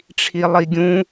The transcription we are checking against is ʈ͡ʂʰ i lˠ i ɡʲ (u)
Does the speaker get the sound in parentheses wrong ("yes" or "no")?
yes